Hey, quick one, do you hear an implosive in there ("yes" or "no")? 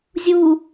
no